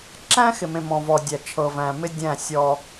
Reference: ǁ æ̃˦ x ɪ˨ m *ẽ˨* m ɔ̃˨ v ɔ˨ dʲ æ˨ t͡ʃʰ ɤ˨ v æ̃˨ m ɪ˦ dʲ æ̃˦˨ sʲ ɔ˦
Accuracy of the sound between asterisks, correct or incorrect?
correct